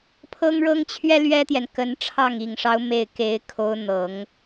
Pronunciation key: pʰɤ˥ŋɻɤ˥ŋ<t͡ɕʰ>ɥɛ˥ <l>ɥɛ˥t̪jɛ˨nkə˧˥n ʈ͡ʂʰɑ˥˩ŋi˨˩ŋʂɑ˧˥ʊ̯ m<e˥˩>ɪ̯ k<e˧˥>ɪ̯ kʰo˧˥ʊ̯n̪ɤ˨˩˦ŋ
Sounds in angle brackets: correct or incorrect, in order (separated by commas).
correct, correct, correct, correct